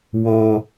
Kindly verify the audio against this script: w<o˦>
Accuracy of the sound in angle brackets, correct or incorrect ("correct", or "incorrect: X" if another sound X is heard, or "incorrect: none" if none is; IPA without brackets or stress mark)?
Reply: correct